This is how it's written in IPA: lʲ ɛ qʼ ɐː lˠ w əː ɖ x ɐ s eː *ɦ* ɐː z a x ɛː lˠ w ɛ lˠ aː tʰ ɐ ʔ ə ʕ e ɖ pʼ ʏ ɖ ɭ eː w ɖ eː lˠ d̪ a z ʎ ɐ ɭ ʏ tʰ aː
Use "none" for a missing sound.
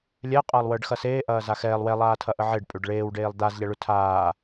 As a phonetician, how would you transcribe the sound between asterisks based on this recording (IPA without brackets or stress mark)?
ʔ